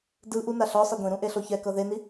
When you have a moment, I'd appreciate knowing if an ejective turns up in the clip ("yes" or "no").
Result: no